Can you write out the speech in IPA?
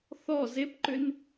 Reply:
θ ɔ z e p ǃ ʏ n

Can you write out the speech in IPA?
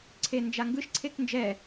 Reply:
ǀʰ e n d͡ʒ a ŋ ɡ ɯ ʃ ǀʰ e k n d͡ʒ ɛ

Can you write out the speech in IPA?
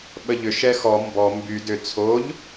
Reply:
ɓ ə ʎ ʏ ʃ ɛ x ɔ m b ɔ m b y d ʏ t͡sʰ o ʎ

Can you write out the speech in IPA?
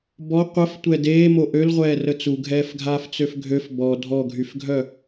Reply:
b ɔ qʷ ə f tʷ ɛ d eː m o ʔ ø l ʁʷ ɛː r ə t͡s u ɡʱ ɛː f ɡʱ aː f t͡s ø f ɡʱ ø f b ɔ dʱ ɔ ɡʱ y f ɡʱ œ

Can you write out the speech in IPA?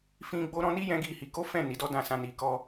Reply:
f ĩ˦ ɡ͡b o˦ ɾ ɔ̃˦ n i˦ j ɛ̃˦ ɡ i˦˨ h i˨˦ k o˦ f ɛ̃˦˨ n i˨˦ d ɔ˦ d ã˦˨ s ã˧ n i˧ k ɔ˦

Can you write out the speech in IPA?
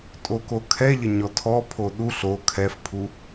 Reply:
tʼ o k o kʰ ɛ ʎ ə ɲ ɔ tʰ ɔ pʰ o ɗ u ɬ o kʰ ɛ f pʰ u

